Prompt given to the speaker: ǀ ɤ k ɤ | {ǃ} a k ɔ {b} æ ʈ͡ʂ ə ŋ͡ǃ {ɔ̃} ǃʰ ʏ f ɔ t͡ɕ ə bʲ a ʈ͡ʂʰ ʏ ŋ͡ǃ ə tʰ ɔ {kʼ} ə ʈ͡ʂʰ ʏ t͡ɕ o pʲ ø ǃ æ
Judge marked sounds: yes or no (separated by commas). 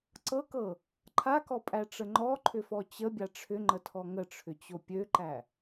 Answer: no, no, no, no